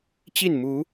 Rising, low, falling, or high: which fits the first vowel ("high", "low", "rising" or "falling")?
falling